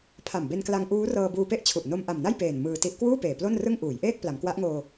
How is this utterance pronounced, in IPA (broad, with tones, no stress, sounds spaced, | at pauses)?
pʰ a˨˩ m b e˧ n k l a˧ ŋ ʔ uː˦˥ r ɤː˧ b uː˧ p e˥˩ ʔ t͡ɕʰ u˨˩ ʔ n o˧ m ʔ a˨˩ m n a˥˩ j p eː˨˩ n m ɯː˧ t i˦˥ ʔ k w uː˥˩ p eː˨˩ p l o˥˩ n r ɯ˥˩ ŋ ʔ uː˩˦ j ʔ eː˥˩ k̚ p l a˩˦ m k w a˦˥ ʔ ŋ oː˧